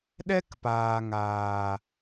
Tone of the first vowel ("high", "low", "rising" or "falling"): high